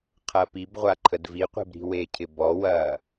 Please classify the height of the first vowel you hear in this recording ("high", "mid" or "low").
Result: low